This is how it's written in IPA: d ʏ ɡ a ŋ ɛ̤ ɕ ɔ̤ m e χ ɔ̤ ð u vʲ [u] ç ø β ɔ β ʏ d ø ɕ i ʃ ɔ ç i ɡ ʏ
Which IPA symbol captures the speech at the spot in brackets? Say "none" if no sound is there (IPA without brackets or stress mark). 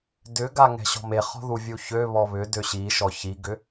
u